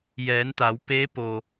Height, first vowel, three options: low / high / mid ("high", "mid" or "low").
mid